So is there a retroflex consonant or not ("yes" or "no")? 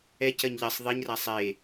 no